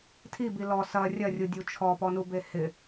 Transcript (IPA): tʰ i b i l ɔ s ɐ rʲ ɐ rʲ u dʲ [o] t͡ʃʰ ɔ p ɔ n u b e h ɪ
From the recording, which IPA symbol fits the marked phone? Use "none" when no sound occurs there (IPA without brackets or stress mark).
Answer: u